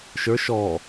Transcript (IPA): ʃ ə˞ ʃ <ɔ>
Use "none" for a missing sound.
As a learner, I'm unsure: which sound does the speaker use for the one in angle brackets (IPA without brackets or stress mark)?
ɔ